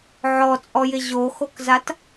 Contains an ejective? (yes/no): yes